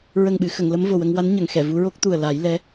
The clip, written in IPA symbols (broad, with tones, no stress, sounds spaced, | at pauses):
ɹ ə˨˩ ŋ ɓ ɨ˨˩˨ x ə˨˩˨ ŋ l ə˧˥ m v o˨˩ w ə˧ ŋ w a˧˥ n ɲ ə˨˩˨ ŋ x ɛ˨˩˨ v u˧˥ ɹ o˦˥ k̚ t̪ u˨˩ ə̯ l a˨˩˦ j l ɛ˧˥